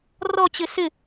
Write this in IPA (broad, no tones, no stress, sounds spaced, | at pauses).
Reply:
r ɔ t͡ɕ ɪ s ɪ